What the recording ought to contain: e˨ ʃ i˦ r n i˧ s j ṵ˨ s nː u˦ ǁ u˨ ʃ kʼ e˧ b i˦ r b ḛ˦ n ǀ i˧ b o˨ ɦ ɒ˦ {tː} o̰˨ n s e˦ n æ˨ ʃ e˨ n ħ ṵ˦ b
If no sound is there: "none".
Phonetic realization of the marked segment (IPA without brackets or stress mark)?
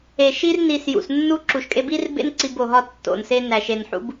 tː